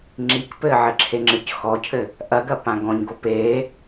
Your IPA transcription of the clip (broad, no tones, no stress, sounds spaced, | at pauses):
ŋ͡ǁ i k p ɘː ʕ ɘ ǁʰ e ŋ͡ǁ ɨ c x ɔ cʰ ɘ | ʔ ɐ ɡ ɐ p ã ɡ ɔ̃ ɲ ɡ o p eː